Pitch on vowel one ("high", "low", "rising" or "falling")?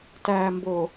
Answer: low